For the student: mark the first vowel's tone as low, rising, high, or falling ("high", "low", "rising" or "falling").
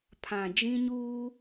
low